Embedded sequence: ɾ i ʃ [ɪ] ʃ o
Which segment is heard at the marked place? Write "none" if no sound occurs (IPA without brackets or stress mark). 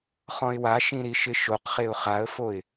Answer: ɪ